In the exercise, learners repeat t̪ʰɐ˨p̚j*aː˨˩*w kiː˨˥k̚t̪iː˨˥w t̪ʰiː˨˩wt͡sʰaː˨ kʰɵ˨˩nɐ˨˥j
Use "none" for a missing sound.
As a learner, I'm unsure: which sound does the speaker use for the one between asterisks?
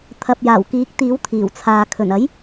aː˨˩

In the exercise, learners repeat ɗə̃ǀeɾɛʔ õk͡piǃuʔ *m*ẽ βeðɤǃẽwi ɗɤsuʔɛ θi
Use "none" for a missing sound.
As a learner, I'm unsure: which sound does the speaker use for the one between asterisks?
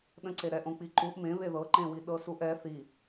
m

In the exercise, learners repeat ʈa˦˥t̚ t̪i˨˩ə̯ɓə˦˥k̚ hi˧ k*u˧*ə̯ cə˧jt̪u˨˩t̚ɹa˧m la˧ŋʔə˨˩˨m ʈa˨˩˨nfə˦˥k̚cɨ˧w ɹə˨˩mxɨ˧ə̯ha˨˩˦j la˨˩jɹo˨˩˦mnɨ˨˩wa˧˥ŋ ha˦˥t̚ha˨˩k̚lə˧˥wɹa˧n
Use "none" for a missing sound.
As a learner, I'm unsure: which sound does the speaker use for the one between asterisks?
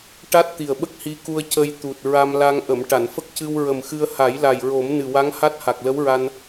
u˧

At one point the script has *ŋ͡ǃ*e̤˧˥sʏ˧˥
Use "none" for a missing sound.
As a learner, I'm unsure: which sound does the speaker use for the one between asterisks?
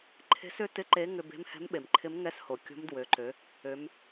ǃʰ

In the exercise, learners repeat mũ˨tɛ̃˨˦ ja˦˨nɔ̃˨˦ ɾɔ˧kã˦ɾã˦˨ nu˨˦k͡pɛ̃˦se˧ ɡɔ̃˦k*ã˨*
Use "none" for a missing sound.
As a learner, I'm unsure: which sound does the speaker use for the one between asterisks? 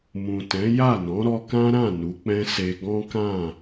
ã˦˨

